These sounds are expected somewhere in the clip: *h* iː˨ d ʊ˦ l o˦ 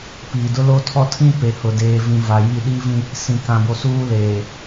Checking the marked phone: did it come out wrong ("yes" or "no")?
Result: yes